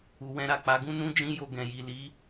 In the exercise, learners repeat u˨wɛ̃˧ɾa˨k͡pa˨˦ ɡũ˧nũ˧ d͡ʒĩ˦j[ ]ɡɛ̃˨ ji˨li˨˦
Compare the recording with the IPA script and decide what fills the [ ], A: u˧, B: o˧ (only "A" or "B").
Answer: B